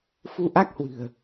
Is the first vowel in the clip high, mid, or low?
high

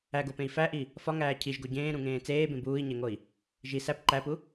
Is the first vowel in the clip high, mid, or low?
low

